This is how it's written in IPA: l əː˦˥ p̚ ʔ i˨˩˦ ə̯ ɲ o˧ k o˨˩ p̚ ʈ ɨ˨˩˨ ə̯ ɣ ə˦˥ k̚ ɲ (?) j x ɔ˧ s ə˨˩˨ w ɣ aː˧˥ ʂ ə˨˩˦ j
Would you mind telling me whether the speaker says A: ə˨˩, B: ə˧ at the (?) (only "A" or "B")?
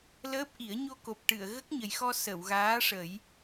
A